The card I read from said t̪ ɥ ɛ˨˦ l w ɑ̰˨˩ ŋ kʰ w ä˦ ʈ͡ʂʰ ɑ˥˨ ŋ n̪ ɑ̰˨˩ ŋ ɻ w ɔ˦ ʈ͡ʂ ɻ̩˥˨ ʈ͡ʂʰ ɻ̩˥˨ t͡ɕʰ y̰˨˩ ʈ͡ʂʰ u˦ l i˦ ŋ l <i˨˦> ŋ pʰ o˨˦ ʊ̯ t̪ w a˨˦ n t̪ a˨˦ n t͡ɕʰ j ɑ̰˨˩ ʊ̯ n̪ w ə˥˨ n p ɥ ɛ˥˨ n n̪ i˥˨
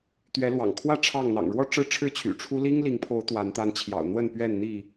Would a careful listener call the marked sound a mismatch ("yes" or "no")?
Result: no